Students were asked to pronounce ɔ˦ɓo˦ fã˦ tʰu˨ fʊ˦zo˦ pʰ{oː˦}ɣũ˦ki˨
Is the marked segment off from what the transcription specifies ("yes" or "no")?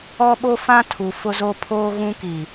no